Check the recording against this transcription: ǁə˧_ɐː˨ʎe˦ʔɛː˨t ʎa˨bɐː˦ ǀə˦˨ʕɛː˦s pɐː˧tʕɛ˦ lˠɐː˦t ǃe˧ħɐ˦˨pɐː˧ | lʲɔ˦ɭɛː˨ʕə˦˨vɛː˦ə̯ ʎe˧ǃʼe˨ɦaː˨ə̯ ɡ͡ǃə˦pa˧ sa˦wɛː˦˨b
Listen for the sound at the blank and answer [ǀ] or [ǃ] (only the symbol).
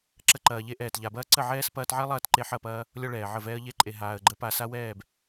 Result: ǃ